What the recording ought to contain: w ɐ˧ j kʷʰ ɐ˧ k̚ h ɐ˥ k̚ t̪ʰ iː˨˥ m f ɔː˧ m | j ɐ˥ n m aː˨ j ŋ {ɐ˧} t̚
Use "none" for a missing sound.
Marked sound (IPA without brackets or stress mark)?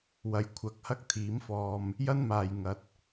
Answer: ɐ˧